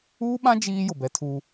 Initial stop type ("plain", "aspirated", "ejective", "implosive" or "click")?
implosive